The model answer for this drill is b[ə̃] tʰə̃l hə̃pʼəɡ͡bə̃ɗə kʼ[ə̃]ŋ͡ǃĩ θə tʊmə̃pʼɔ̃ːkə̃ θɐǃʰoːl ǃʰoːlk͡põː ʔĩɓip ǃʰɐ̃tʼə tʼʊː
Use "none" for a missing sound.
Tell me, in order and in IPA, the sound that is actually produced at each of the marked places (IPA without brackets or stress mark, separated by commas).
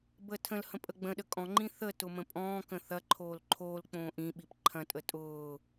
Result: ə, ɔ̃